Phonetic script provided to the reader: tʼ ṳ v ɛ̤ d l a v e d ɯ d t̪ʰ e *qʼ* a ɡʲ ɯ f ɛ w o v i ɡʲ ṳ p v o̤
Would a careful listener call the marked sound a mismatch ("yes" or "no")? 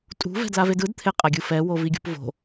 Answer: no